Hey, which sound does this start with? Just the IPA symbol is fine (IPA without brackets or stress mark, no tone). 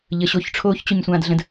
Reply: ʎ